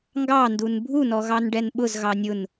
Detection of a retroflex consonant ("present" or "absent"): present